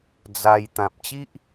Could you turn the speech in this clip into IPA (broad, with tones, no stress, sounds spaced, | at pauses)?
d͡z a˧ j t̪ ã˨ p̚ t͡ɕ i˦ ʔ